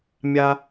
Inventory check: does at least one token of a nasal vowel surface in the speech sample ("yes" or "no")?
no